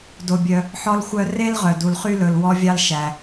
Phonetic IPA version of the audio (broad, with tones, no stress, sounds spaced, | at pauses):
d o˩ bʲ œ˩ | ħ ɔ˧ l xʷ œ˧ r e˥ l ʁ œ˩ d u˩ l χ y˧ l ɵ˩ l w ɔ˧ vʲ ɑ˧ l ʃ æ˩